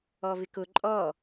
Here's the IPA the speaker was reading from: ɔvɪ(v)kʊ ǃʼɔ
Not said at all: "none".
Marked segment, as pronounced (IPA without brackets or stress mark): none